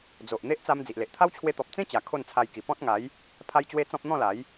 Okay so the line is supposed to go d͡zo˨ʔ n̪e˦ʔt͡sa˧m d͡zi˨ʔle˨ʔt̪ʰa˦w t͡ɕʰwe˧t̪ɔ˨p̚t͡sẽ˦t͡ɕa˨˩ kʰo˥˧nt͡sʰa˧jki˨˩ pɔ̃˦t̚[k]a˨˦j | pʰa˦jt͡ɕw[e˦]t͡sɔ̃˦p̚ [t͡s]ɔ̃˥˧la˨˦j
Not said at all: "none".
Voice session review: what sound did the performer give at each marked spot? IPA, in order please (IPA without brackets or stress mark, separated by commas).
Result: ŋ, e˦, n̪